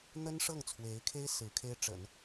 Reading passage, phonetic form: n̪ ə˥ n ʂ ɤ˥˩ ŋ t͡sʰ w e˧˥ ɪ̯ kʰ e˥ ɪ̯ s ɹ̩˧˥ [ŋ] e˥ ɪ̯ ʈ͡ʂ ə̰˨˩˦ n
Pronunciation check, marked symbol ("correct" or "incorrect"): incorrect